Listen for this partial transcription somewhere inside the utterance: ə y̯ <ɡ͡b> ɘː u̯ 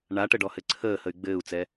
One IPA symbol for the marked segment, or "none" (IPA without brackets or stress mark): ɡ͡b